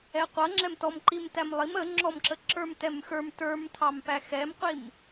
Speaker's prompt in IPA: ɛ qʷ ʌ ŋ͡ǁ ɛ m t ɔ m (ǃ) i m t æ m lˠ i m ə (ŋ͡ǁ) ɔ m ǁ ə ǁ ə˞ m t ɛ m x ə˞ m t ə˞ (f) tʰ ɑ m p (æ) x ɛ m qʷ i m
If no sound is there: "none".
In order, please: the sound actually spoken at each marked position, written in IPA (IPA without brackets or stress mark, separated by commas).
ǃ, ŋ͡ǁ, m, æ